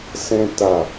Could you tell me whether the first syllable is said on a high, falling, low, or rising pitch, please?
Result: high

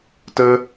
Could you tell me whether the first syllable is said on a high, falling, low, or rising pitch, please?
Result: high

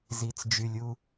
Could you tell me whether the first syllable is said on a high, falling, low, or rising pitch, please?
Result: low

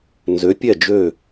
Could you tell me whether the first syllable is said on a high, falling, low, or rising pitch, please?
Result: rising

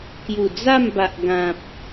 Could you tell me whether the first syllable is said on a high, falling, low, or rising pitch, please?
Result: low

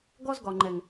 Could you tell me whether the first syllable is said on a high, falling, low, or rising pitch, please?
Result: high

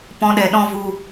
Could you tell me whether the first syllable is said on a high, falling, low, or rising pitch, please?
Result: high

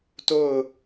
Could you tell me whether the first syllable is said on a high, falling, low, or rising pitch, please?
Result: falling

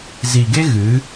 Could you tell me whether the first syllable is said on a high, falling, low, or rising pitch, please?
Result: low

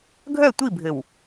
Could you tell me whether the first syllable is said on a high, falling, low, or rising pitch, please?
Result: falling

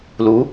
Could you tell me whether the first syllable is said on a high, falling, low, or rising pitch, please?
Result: rising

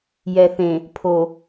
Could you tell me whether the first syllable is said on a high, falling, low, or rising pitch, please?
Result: low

